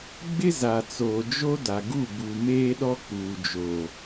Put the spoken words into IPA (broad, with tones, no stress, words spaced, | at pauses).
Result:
ɡ͡bɪ˦za˨ t͡soː˨d͡ʒo˦da˨ ɡu˦˨bu˨meː˦ɗɔ˦ k͡puː˨d͡ʒoː˨